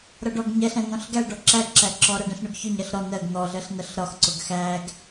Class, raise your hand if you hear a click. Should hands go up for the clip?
yes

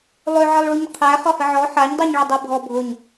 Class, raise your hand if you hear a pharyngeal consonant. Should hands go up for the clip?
yes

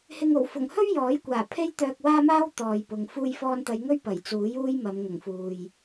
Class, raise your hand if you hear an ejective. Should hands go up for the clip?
no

